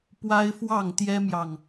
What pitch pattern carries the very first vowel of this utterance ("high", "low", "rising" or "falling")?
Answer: high